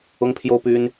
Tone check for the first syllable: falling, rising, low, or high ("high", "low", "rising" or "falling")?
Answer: high